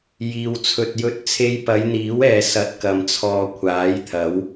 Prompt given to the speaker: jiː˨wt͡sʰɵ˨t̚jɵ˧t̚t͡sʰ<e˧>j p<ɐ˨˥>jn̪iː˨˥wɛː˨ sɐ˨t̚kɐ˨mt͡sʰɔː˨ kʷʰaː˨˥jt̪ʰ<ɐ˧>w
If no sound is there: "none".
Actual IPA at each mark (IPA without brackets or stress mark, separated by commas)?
e˧, ɐ˨˧, ɐ˨˥